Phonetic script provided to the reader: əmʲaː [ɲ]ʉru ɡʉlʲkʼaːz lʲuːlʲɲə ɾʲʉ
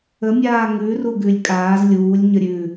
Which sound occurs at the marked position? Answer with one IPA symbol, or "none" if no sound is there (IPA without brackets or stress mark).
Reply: ŋ